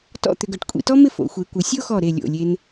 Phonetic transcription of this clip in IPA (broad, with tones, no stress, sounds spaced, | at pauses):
t ɔ̰˥˧ t̪ ʏ˧ ɡ œ˧˩ ʈ kʷʼ ḭ˧ t ɔ˥ m ɪ˥˧ f o̰˩˧ xʷ e˩˧ kʷ ɪ˩˧ sʲ o˥ x ɔ˧˩ ɾ e˧˩ lʲ o̰˧˩ lʲ e˧ n